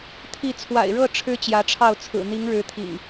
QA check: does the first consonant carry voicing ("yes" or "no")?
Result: no